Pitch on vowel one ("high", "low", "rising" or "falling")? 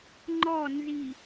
falling